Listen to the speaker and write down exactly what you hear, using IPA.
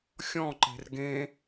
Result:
xʲ ɔ̃ ǃ e̤ r ɡ ẽ

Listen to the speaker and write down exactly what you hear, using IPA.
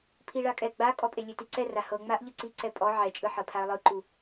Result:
pʰ i ɭ a kʼ ɛ ɡ͡b a kʼ ɔ pʼ e lʲ e t i ǀ ɛ r a h ɤ ŋ͡m a ʔ ʎ ɯ ǀ i ǀ ɛ pʼ ɔ ʕ ɛ t͡ʃʼ ɯ ħ ɤ pʰ a ə̯ lˠ ɯ ǃ u

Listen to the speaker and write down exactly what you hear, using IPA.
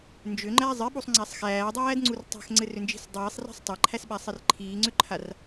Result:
n d͡ʒ ʏ ŋ͡ǃ æ zˤ ɘ ɓ u sˤ ŋ͡ǀ æ sˤ x æː dˤ æː d ŋ͡ǀ u r tˤ æ̤ x ŋ͡ǀ ɘ r ʏ n d͡ʒ i̤ s dˤ iː sˤ r æ̤ sˤ tˤ a ǃʰ æ s ɓ a sˤ ɘ r ǃʰ iː ŋ͡ǀ ʏ ǃʰ a r

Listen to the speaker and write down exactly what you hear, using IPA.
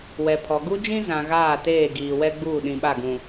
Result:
w ɛ˨ pʰ ɔ˨ ɡ u˦ d͡ʒ ĩ˦ z ã˨ ɣ aː˦˨ t eː˦˨ ɡ iː˨ w ɛ˦ ɡ͡b uː˦˨ ɗ ĩ˨ ɓ a˦˨ ɡ ũ˨

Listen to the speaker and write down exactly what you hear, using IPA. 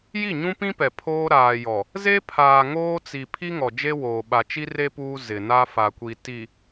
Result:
j i˦˨ ɲ ũ˦ p ĩ˦ p ɛ˨ pʰ oː˦ ɾ aː˨ j ɔ˨ | z e˦ pʰ aː˨ ŋ oː˦ t͡s i˨ pʰ i˦ ŋ ɔ˨ d͡ʒ e˦ w oː˨ ɓ a˨ t͡ʃ i˦ r e˦ p uː˦ z ɪ˨ n a˦ f a˨ kʷ i˨ t i˨

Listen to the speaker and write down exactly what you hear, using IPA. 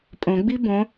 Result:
pʼ õ ɡ͡b i b õ

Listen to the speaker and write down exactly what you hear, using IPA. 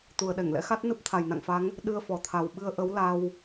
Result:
t̪ u˨˩ ə̯ ɗ ɛ˧˩ ŋ l ɛ̰˧˥ x a˦˥ t̚ n ɨ˦˥ p̚ t̪ʰ a˨˩ j n a̰˧˨ ŋ f a˨˦ ŋ | ɗ ɨ˧ ə̯ f ɔ˨˩ t̪ʰ a˨˩ w ɓ ɨ˧ ə̯ ʔ ə˨˦ w l a˧ w

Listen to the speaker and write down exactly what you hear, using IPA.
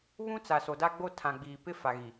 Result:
β ũ˦ t͡s a˨ s o˨ d a˦ ɡ͡b o˦ tʰ ã˨ ɡ͡b iː˨ p ɪ˦ f a˨ ɣ i˨

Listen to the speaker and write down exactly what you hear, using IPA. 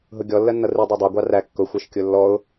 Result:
ɦ ʊ ɡʲ ɔ lː ɜ nː ʌ r i dˤ ɜ dˤ æ ɡʷ ɑ r æ kː ʊ xʷ ɜ ʃ kʲ ʊ lː ɔ ʊ̯

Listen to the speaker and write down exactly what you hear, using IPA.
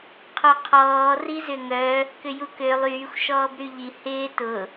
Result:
qʰ o qʰ ɔː r i z ʏ ŋ œ | k ʏ j u k ø lˠ yː xʷ ʃ ɔː b ɾ y ʎ i h ɪː t ʊ

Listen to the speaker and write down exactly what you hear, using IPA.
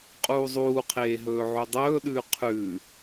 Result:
qʼ uː zˤ uː qʰ eː ɦ ɵː ʕ ʉ dˤ ɵː ɗ ʉː qʰ ʉ

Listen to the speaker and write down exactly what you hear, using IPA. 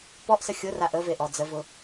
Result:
p ɔ ʔ s ə xʲ ʊ r a ʔ ə v e ʔ ɔ d͡z ə v ʊ

